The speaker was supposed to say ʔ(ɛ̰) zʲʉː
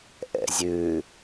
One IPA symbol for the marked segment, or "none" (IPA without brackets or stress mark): ɛ̰